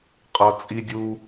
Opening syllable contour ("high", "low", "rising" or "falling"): low